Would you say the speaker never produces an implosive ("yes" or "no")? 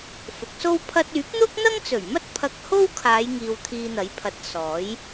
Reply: yes